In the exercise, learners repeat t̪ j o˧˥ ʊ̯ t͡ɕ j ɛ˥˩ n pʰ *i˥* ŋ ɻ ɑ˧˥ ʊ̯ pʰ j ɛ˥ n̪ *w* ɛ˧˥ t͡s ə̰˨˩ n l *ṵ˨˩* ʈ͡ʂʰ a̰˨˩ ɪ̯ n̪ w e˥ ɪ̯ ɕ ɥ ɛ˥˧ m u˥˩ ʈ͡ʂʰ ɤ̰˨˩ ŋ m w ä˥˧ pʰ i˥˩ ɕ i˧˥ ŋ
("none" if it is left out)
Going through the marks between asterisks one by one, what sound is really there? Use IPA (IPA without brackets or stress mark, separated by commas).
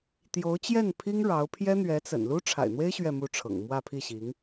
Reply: i˥, ɥ, u˥